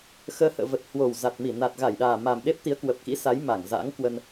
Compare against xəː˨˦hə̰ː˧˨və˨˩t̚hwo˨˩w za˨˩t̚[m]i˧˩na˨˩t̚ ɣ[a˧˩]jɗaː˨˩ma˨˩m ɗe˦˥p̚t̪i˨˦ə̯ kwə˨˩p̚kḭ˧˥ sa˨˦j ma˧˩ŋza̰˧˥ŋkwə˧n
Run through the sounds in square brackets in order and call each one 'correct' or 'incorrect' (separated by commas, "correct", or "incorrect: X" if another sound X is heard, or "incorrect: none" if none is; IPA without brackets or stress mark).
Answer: correct, correct